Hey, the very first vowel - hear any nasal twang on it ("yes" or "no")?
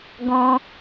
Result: yes